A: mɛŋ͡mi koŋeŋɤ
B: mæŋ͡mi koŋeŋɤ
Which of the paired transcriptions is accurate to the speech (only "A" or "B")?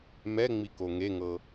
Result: A